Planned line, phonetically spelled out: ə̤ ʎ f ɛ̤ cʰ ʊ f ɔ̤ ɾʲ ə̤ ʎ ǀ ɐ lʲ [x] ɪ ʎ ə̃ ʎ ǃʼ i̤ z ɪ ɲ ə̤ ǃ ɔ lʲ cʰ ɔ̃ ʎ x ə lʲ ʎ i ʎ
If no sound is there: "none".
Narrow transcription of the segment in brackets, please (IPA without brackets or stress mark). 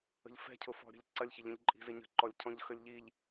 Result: ç